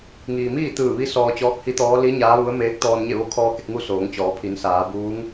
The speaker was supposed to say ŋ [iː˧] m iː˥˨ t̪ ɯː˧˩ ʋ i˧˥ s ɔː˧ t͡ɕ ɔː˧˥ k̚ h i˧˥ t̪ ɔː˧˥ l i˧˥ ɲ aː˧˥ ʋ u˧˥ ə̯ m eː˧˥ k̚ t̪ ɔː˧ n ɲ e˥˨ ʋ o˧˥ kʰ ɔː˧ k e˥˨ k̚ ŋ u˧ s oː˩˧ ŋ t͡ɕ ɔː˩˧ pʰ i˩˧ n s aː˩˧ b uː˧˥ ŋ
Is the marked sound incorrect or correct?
incorrect: iː˩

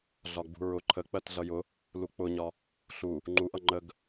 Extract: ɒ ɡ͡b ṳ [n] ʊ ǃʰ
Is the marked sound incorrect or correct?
incorrect: ɹ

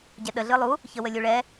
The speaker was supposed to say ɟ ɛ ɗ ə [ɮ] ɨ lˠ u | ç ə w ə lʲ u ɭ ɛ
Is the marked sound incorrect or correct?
correct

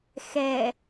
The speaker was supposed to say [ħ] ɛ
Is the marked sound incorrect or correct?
incorrect: x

